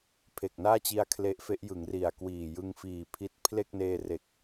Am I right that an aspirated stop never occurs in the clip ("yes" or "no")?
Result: no